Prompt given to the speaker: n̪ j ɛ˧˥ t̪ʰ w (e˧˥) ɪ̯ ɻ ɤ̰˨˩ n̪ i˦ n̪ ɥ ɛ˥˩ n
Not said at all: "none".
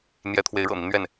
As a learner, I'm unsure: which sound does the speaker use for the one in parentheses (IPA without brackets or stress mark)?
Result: e˧˥